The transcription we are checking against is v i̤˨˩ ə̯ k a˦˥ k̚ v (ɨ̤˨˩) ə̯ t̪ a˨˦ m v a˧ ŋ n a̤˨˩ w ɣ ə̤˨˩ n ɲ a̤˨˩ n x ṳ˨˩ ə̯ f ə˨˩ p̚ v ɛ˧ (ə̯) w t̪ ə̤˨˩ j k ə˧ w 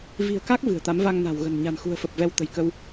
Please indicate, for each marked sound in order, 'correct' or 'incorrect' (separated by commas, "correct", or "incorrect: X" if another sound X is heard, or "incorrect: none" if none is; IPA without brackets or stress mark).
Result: correct, incorrect: none